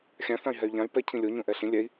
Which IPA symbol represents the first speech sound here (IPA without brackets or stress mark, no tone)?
xʲ